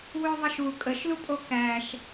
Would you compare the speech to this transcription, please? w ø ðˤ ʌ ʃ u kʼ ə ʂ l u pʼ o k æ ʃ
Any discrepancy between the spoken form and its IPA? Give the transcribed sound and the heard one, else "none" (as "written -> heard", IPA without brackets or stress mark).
ʂ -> ʃ